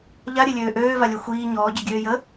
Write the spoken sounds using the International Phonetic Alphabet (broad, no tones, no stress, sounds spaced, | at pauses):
ʎ a ɾʲ e lʲ øː ʔ øː v a lʲ œ xʷ iː ɲ ɔː ɟ œ ɡʲ øː j ə